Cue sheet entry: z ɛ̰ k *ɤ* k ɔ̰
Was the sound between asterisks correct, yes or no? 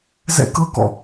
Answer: yes